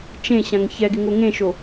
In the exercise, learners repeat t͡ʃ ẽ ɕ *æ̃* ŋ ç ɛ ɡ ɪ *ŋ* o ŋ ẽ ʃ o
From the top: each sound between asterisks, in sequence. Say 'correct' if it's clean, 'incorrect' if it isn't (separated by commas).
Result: incorrect, correct